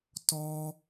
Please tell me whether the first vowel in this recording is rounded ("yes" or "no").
yes